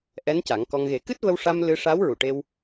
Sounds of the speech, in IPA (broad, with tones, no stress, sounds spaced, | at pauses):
ʔ ɛ˧˥ n c a˨˩˦ ŋ k ɔ˧ ŋ ɣ e˨˩˦ k ɨ˦˥ t̚ v ə˧ w ʂ a˧ m l ɨ˧ ʂ a˧˥ w ɹ u˨˩˨ ʈ e˧ w